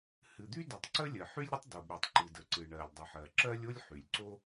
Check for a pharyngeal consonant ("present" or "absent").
present